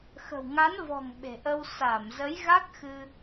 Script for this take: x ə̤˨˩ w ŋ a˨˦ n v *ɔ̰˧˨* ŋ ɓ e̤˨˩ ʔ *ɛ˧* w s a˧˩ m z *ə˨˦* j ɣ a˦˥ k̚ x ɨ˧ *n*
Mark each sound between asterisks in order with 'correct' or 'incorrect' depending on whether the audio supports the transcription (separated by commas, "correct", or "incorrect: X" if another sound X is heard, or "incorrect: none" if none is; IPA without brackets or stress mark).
incorrect: ɔ̤˨˩, incorrect: ə˧, correct, incorrect: none